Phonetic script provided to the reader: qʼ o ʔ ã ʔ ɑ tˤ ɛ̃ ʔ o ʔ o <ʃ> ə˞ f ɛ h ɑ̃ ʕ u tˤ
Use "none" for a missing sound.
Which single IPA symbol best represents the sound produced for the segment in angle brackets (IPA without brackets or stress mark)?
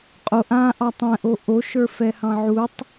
ʃ